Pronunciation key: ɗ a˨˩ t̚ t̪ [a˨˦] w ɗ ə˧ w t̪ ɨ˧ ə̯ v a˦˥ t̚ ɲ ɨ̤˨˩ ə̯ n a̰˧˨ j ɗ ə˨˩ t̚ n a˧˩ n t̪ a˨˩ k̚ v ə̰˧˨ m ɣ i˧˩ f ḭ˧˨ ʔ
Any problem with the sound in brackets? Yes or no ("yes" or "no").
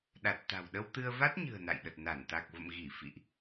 yes